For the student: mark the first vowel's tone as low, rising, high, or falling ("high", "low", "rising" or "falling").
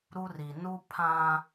high